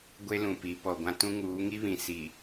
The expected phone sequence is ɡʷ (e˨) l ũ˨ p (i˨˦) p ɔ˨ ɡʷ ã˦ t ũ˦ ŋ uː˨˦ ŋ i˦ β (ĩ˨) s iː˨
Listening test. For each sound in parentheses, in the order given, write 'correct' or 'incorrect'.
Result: incorrect, correct, correct

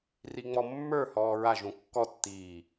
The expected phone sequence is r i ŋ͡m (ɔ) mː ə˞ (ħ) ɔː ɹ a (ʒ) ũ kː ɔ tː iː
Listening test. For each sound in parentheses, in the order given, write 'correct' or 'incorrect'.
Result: correct, incorrect, correct

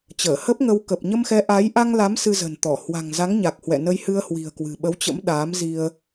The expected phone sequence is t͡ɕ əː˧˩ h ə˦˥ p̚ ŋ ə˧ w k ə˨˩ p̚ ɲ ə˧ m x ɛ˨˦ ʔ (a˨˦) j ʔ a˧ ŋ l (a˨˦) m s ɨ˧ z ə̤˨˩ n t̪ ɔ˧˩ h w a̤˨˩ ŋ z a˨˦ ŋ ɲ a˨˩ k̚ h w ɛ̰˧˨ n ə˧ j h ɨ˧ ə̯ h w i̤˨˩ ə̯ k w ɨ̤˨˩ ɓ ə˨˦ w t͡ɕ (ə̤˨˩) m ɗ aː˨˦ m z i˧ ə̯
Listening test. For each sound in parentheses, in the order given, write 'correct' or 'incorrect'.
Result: correct, correct, incorrect

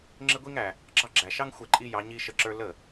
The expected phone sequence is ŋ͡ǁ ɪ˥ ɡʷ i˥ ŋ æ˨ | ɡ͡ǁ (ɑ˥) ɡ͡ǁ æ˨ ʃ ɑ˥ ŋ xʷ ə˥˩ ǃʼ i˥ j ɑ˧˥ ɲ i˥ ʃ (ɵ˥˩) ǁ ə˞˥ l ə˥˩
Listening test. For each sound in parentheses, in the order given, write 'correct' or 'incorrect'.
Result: incorrect, incorrect

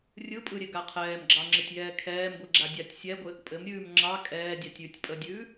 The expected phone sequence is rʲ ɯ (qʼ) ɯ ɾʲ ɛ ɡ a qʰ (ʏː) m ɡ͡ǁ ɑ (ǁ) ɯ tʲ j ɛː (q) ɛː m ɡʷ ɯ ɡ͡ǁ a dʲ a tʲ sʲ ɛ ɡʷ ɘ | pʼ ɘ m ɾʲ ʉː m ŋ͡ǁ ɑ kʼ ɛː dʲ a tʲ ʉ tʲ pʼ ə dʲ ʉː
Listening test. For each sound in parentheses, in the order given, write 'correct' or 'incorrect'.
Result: incorrect, incorrect, incorrect, incorrect

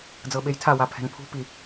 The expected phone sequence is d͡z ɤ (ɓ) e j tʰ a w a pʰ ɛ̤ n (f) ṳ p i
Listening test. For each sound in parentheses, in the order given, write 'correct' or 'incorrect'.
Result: correct, incorrect

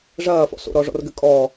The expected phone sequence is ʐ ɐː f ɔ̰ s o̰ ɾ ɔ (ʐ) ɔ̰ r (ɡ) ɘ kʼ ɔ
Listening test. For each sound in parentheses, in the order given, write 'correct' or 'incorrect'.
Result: correct, correct

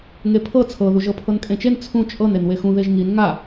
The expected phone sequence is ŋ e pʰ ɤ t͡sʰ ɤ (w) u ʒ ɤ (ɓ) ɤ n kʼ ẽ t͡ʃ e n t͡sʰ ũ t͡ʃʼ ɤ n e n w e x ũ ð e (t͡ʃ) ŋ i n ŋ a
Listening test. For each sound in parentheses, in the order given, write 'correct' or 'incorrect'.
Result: incorrect, incorrect, incorrect

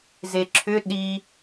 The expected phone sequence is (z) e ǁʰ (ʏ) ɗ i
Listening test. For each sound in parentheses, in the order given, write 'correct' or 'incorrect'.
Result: correct, correct

